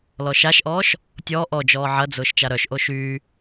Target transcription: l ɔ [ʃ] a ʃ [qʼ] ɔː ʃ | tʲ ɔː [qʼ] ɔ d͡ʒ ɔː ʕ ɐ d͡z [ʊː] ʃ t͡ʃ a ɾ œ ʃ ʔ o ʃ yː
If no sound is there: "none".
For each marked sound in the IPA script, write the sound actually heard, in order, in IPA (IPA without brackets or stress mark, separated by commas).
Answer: ʃ, ʔ, ʔ, ʊː